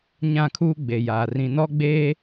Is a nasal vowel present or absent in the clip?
present